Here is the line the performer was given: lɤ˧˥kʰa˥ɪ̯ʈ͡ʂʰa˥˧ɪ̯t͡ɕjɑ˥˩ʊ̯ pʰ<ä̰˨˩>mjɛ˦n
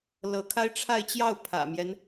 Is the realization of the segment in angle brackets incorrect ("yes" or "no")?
no